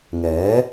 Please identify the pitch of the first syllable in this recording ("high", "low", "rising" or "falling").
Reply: rising